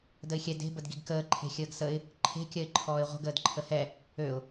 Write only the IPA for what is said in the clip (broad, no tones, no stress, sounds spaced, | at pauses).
d ə ɪ̯ xʲ ɛ d e̤ b ə d ɡ i ɡ k əː ǃʰ e̤ xʲ əː ɡ s ə ɪ̯ | ǃʰ e̤ kʲ ɜ ɪ̯ ǃʰ ɔː ɪ̯ ʁʷ ə̤ ɡ əː d ǃʰ ə h ɛ | ø ʊ̯